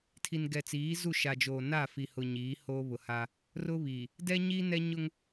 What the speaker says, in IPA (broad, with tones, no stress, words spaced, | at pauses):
tʰi˨n ɡɛ˨t͡siː˨˦zu˦˨ ʃa˨d͡ʒoː˨ na˦˨fi˨hʊ˨ ɲiː˨˦hoː˦ βʊ˨ha˦ | rʊ˦βiː˨ | dɛ˦ɲiː˦nɛ˦ ɲʊ˦ŋ